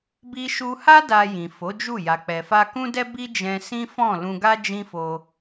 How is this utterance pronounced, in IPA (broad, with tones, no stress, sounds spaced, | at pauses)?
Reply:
b i˧ ʃ u˧ h a˦ d a˧ j ĩ˨ f o˨˦ d͡ʒ u˦˨ j a˨ k͡p ɛ˨ f a˧ k ũ˦ d ɛ˦ b i˦ d͡ʒ ɛ̃˧ s ĩ˦ f ɔ̃˦˨ l ũ˧ ɡ a˦ d͡ʒ ĩ˦ f o˧